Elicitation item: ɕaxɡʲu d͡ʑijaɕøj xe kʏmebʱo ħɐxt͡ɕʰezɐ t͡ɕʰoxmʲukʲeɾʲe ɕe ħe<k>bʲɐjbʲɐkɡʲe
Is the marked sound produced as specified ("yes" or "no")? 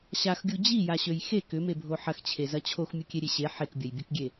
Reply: yes